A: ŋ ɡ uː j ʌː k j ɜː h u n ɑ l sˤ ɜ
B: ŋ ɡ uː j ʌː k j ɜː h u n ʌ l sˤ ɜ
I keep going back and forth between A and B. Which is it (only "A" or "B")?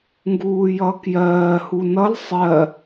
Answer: B